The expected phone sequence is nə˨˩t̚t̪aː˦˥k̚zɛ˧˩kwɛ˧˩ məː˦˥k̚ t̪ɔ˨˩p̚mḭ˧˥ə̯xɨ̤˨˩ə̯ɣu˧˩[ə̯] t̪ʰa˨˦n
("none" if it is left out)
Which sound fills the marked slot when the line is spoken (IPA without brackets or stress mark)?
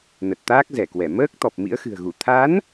none